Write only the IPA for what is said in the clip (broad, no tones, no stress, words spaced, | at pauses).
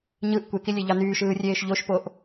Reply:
ɲɯʔ kʷekilʲeʎɑ nyːʃɯːrʲeːʃ ʎoʃpoʔ